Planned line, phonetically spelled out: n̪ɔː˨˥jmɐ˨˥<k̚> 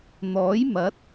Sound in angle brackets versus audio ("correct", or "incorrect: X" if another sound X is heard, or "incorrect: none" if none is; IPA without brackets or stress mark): incorrect: t̚